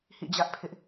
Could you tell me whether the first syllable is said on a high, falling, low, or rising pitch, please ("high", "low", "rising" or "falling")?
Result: falling